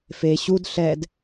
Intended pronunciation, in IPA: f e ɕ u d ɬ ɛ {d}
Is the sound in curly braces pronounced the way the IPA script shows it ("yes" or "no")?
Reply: yes